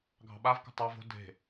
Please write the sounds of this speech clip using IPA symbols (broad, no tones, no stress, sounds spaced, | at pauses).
ɡʱ ɑ̤ ɓ a v k o̤ tˤ ɑ v o̤ dʱ e̤